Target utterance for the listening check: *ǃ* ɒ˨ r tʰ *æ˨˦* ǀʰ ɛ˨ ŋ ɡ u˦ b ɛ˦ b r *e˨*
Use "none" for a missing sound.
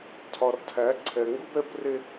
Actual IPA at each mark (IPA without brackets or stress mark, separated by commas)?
tʰ, æ˨˦, e˦